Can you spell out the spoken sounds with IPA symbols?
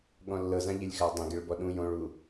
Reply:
ɠ ɔ̃ lː ɤ z ã ʎ e lʲ x a dˤ ẽ ɡ e ɭ b ɔ ɗ ũ j õ ɭ u

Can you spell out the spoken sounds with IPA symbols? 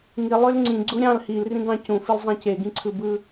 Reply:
ŋ i lˠ ø l ŋ͡ǀ ĩ ɡ͡ǀ u ɾʲ ɑ̃ l h i l r ĩ ɡ ɑ̃ c ũ f i l zˤ ẽ c e ɡ ĩ ǀʰ ɯ b ɯ

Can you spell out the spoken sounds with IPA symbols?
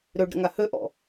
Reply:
ɾ ø ɖ ɾ ə̰ ŋ a h ø ʔ ɔ̰

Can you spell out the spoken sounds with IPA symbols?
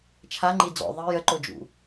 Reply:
t͡ʃʰ a ŋ͡ǃ i d͡z ɔ̰ ðˤ i j ə ǃ o d͡ʒ ṵ

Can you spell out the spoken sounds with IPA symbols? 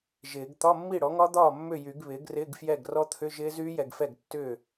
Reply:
ʒ ɪː˨˩˦ ɡ t̪ ɒ˧˥˧ mː i˥˩ ɽ ɔ˩˥ ŋ ɒ˦˥ d̪ ɒː˥˩ mː ʏ˥˩ j y˨˩˦ ɡ β ɪː˩˥ ɡ r ɪː˧˥˧ ɡ f j ɛ˥˩ ɡ r ɔ˦˥ t̪ʰ ʏ˧˥˧ ʒ ɪː˦˥ z yː˦˥ j ɛ˨ ɡ f ɛ˥˩ ɡ tː ʏː˥˩

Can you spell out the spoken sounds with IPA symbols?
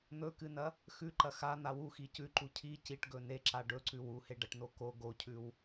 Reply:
n̪ ɵ k ɨ n ɐ | x ʉ ǃ ɐ x a n̪ a w u x i c ʉ ǃ u cʰ i c i ʈ ɡ ɵ n e ǁ a ɖ ɵ ǀ ʉ w u h e ɖ ɐ ʈ n o k o ɡ o cʰ ʉ w

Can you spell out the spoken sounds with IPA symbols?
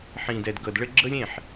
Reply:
ħ ĩː˨ d ɛ˨ d ɡ ɤ˨ d ɭ ɘ˦ ɡ͡ǁ ɤ˦ lʲ ẽ˦˨ ħ

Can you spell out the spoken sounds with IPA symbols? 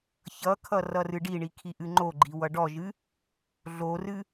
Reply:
ç ʌ kʰ ʌ r ʌ r ɨ ɖ i ɳ i kʰ i ʔ ɨ ŋ͡ǃ o ɡ͡ǃ i w ʌ ɖ ɔ ʒ ɨ | ɮ o r ɨ

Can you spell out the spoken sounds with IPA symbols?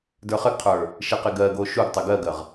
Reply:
d ə˞ χ ɘ ɡ qʰ ə˞ | ʃ e q e ɡ ɜ ɡ o ʃ u ɡ tˤ ɘ ɡ ɜ ɡ ɜ ʁ

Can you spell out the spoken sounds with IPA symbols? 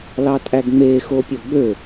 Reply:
l ɑ tʼ æ ɡ ŋ͡m e x o pʲ o ɡ͡b ø

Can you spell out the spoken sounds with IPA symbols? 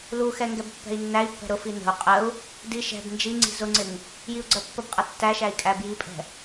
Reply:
l u x ɛ ŋ ɡ ɛ b pː ɛ̤ i̯ nː æ i̯ pː ɛ̤ ɾ ʊ f i n ə̤ u̯ qʼ ə u̯ | d i ʃ ɛ̤ b n d͡ʒ i ŋ͡ǀ i̤ z ʊ ŋ͡ǀ ɪ ŋ | j i u̯ ɡ͡ǀ ɜ pː ə b qʼ ʌ tː æ ʃ æ i̯ kʼ æ b j i pʼ ɛ̤

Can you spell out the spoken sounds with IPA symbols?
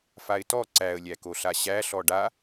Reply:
f a ɪ̯ t ɔ ǀ æ ə̯ lʲ æ k o ɬ a ɕ æ ɬ ɔ ɖ a

